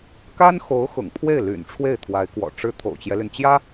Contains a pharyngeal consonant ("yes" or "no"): no